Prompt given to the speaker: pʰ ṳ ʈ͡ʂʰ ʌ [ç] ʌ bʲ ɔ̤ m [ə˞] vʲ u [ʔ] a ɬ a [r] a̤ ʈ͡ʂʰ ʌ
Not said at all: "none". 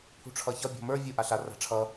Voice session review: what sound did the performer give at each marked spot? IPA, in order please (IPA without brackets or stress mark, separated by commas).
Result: ç, ə˞, ʔ, r